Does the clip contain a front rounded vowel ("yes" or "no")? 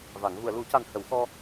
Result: no